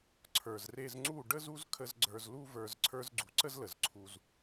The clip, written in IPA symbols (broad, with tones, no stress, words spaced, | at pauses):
ǀʰə˞˨zre˧zŋ͡ǀu˦˨ ɖə˦z u˦zkʰə˧z ɡ͡ǀə˞˧zlu˦və˞˧z ǀʰə˞˧zɡ͡ǀu˨ǀə˦zlə˨z ǀʰu˧z